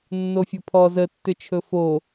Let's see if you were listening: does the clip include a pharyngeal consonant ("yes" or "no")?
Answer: no